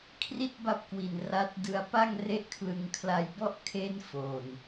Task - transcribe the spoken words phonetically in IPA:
kʰri˥˩t̚ba˦˥p̚kwi˨˩n ra˦˥t̚ dɯ˧a̯pa˥˩ŋre˥˩ʔkʰlɯ˧ŋ kʰla˧jbɔ˥˩ʔ kʰe˥˩nfoː˨˩n

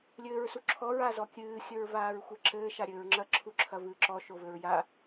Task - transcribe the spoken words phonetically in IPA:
lʲɘːɹsuǁʰɔɹ azɔkʲɨː xʲɘɹvaːɹxʷɛǁɘː ʃaɾʲɘːɹŋ͡ǁɐ ǁʰuǁʰɐvɨːǁɔ ʃovɘɹja

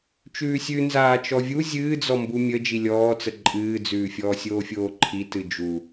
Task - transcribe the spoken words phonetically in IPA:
t͡ʃʉːsʲʉ nzaːt͡ʃɔvʲu zʲɨːd͡zɔ mbumʲə d͡ʒilʲɔːt͡sə ǃʼɨːd͡zʉːfʲɔː sʲoːfʲoːǃʰi tɨd͡ʒu

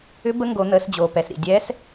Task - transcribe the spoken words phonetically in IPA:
ʏ˧˥ bə˧˥ŋɡo˩˧n̪əː˩˧sd͡ʑoː˩ pɛ˩sɾḭ˩dʲɛː˧˥s

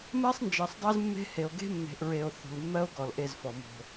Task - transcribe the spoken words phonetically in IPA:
mɜ˦sˤnd͡ʒɜ˨sˤdˤe˦z mːe̤˦he˨o̯ ɡe̤˦mːe̤˨ʔɹe˨o̯ θṳ˨lmːɜ˦o̯ɡɔ˨l ʔe˦˨zfɔ˨ mo̤˦

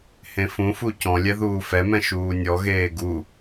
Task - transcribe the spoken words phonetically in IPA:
hẽfũfu cɔ̃lʲɛ ðuːfɛmɛ̃ ʃuːnʲɔɣeː ɡu

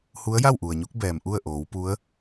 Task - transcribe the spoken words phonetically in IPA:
hu˧˥ə̯ja˥˨wʔu˩ə̯ɲu˧˥k̚ bɛː˩mʔu˥˨ə̯ ʔoː˩˧wpu˧˥ə̯

